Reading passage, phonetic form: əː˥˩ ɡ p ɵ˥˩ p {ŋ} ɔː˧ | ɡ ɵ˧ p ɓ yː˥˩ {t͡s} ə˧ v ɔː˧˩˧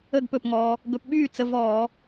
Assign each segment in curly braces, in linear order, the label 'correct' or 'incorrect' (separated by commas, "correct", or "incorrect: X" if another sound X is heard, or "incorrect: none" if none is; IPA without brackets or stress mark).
correct, correct